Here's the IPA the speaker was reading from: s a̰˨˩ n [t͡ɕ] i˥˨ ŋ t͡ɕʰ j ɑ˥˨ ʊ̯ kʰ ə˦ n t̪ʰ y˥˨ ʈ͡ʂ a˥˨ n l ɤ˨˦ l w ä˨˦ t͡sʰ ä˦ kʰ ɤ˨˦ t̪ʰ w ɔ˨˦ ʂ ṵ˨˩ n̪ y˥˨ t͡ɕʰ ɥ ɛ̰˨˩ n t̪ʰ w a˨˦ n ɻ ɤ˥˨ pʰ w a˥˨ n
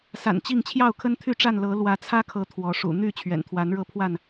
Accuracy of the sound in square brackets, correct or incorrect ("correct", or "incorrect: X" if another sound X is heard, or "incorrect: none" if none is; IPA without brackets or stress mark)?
correct